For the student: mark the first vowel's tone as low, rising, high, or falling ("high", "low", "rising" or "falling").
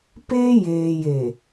high